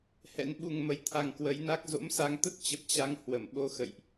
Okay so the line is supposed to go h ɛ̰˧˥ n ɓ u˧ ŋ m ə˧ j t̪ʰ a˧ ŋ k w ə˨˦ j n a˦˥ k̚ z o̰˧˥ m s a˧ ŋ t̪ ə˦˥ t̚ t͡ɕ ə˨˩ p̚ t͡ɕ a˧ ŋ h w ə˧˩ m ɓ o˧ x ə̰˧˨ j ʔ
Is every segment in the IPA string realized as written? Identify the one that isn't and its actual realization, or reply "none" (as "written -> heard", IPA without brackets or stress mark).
none